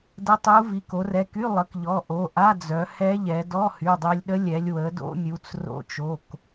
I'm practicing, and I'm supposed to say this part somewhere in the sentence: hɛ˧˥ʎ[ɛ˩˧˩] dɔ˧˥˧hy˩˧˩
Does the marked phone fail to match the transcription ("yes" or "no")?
yes